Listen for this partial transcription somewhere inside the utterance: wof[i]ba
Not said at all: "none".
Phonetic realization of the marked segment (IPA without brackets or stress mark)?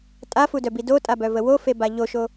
e